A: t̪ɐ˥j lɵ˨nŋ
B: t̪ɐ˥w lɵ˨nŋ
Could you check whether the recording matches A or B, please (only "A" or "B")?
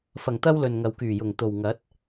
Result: B